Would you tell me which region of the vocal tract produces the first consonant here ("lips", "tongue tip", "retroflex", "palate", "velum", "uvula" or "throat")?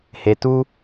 throat